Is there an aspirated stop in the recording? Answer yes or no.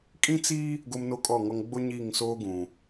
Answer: no